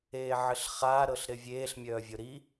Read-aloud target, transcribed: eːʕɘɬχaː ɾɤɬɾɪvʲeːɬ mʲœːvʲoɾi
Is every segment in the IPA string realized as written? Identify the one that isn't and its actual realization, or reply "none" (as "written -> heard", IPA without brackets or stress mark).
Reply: none